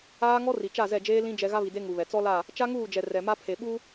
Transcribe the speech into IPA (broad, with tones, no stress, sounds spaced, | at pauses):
aː˦ ŋ ɔ˦ r i˨ t͡ʃ a˦˨ z ɛ˦˨ d͡ʒ eː˦ l ĩ˦ d͡ʒ ɛ˦ ɣ a˦ β i˨ d e˦ ŋ u˨ β ɛ˨ t͡s ɔ˦ l a˦˨ | t͡ʃ a˦ ŋ uː˦˨ d͡ʒ ɛ˨ r ɛ˨ m a˦ pʰ e˨ ɓ u˦